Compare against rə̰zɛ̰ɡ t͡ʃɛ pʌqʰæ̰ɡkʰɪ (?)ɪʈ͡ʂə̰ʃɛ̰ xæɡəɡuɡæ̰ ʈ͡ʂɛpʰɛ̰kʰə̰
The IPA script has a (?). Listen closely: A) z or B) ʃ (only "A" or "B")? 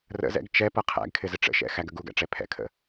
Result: A